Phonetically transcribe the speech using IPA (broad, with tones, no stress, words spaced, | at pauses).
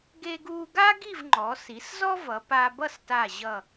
ɡe˧ɡuː˧ɡa˥ ɡi˥˧vŋ͡ǃɔ˩˧si˩˧szɔ˥ vʌ˩˧pa˧ bʌ˥˧sta˧˩ ʑʌ˧˩